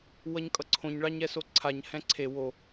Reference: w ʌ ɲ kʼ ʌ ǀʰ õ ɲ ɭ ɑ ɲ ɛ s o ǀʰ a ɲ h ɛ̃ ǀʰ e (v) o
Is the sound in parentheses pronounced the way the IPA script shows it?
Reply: no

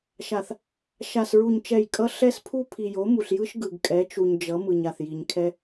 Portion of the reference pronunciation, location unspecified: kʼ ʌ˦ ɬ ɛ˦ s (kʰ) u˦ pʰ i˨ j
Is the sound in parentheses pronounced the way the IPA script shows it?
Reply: no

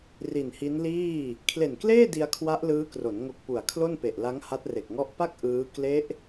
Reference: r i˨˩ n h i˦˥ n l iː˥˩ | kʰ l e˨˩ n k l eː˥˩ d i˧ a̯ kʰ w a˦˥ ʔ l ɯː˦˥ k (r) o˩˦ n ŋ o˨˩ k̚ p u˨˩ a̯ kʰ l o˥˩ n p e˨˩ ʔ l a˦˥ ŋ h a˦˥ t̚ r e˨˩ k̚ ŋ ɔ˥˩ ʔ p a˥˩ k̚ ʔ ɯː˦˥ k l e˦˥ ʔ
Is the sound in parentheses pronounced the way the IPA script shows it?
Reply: yes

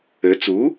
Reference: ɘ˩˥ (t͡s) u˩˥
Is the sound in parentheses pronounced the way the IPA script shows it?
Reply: yes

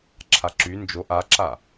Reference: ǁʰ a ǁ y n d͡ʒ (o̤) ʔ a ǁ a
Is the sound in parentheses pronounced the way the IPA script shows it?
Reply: no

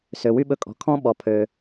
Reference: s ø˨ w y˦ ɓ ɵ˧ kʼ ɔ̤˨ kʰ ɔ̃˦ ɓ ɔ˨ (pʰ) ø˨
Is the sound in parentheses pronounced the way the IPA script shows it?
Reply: yes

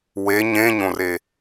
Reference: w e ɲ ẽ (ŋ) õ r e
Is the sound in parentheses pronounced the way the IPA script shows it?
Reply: no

